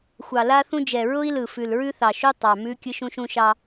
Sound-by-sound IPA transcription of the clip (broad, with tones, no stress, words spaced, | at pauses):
xʷɑ˨ la˦θũ˦d͡ʒɛ˨ ɹʊ˦i̯lɯ˨ fʉ˨lɹʉ˦θɑ˨ʃu˦ tˤɑ˨mʉ˦ kʲɯ˦ʃũ˦ʃũ˦ ʃɑ˦